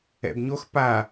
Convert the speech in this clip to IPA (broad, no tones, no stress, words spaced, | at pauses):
ɛ̰bɲox pa